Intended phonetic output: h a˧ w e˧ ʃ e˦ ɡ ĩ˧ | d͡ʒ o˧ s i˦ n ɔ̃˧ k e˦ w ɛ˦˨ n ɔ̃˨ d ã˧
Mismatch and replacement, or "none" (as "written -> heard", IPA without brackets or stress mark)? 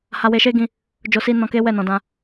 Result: none